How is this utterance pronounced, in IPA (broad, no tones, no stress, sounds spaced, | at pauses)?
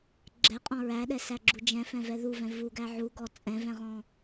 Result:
ɡ͡ǁ ɛ qʼ ɔ̃ ɹ æ ɗ ɛ s æ ɡ͡ǁ u d͡ʒ ɛ̃ f ɛ̃ v ɛ ð u v ɛ̃ v u ɡ æ ʕ u ɡ ɔ t͡sʼ ɛ̃ v ɛ̃ ʁ ɔ̃